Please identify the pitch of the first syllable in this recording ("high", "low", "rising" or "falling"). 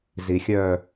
low